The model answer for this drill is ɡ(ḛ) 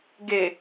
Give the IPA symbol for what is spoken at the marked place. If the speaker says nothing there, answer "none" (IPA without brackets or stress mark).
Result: e